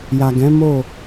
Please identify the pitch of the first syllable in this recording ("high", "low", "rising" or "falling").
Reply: low